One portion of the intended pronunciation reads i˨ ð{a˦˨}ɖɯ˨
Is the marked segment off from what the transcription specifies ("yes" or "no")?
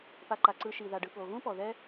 yes